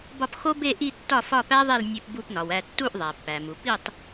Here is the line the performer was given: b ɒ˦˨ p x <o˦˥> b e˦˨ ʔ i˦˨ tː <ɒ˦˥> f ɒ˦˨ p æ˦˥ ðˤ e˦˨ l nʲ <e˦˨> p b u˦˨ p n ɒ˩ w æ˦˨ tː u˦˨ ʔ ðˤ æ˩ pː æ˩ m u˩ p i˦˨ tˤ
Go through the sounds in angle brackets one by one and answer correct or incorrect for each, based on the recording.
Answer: correct, incorrect, correct

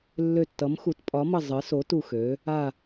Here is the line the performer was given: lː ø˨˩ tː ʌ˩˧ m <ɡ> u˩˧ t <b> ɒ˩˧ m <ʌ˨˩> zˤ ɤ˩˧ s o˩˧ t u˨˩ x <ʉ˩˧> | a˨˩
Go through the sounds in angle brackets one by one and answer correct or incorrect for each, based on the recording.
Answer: incorrect, incorrect, correct, incorrect

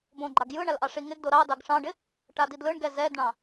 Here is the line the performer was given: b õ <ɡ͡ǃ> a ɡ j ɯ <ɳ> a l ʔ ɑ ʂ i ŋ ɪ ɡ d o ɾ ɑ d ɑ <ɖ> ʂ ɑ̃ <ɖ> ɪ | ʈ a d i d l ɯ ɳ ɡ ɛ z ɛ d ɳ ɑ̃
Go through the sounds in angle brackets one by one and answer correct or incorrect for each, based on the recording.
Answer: correct, correct, incorrect, correct

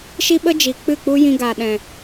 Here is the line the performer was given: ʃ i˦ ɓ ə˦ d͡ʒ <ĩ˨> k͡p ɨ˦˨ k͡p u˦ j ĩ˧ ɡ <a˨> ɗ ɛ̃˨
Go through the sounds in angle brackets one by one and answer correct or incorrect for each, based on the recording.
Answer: incorrect, correct

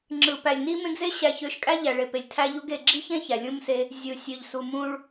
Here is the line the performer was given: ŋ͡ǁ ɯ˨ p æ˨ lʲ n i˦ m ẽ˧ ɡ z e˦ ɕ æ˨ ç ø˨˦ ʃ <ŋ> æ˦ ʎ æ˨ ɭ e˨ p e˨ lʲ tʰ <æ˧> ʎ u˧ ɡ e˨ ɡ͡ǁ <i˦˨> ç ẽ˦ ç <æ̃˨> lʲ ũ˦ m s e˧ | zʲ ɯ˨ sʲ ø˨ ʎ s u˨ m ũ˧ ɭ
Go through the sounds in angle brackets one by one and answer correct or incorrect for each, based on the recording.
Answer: incorrect, correct, incorrect, incorrect

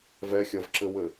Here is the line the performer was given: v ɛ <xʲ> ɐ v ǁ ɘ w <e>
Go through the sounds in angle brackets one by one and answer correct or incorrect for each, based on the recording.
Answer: correct, incorrect

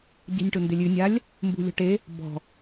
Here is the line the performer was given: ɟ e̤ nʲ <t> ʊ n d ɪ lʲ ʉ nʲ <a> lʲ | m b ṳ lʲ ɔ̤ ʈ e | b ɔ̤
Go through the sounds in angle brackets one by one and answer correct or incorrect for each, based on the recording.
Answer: incorrect, correct

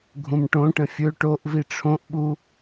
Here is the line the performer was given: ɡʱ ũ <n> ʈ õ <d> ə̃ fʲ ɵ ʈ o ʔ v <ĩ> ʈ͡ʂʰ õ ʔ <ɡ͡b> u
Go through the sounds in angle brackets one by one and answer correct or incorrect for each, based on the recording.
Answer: incorrect, incorrect, incorrect, incorrect

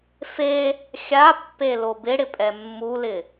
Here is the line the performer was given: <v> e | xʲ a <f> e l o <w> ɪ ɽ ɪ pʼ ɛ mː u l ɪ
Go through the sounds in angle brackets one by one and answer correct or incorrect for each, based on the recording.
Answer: incorrect, incorrect, incorrect

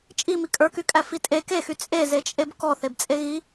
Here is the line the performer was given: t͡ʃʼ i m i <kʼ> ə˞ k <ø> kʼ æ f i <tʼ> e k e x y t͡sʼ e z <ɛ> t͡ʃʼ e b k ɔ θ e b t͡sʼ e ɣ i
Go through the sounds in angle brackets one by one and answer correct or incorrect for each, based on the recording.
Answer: correct, incorrect, correct, incorrect

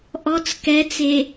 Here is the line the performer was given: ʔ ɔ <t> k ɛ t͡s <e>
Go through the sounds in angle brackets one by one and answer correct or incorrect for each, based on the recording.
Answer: incorrect, correct

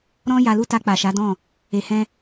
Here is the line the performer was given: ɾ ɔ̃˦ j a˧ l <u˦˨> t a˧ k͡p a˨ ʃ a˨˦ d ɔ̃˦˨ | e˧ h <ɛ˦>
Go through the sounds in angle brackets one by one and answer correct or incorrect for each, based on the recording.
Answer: incorrect, incorrect

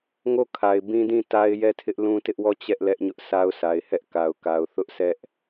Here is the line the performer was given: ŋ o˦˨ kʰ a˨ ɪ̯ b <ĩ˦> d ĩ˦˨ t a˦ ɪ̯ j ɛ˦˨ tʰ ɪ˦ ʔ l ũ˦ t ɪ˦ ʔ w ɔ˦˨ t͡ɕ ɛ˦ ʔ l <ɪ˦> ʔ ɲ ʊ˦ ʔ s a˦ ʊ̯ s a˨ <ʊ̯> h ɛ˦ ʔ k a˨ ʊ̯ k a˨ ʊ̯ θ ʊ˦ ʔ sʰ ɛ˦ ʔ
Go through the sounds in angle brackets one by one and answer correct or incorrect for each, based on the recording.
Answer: correct, incorrect, incorrect

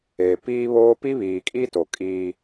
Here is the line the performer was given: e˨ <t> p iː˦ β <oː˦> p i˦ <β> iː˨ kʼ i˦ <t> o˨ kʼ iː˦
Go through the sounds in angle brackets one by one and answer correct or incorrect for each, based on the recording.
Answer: incorrect, correct, correct, correct

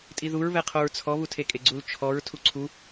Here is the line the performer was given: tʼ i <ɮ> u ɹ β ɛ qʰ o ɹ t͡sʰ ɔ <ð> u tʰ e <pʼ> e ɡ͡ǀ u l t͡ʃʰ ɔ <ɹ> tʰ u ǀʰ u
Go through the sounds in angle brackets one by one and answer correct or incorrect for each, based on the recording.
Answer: incorrect, incorrect, incorrect, correct

